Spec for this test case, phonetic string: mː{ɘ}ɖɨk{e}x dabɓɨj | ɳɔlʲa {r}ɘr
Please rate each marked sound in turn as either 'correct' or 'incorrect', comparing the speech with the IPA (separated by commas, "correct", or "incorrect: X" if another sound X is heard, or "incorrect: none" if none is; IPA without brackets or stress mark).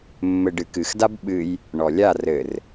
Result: correct, incorrect: ɨ, correct